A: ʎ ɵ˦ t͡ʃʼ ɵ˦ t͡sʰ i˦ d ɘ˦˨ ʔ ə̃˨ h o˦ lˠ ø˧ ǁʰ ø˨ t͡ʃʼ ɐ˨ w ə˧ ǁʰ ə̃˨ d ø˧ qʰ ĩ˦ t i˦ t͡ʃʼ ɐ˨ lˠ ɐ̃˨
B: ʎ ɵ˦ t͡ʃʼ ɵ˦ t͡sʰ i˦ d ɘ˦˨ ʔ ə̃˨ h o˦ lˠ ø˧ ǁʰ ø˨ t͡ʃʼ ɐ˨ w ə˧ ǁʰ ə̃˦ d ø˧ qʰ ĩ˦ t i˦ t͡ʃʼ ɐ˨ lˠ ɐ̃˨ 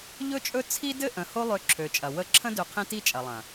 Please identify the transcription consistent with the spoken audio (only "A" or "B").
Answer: B